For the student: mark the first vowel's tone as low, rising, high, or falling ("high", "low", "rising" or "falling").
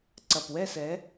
low